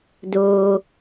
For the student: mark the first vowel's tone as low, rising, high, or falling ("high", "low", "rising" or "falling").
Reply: low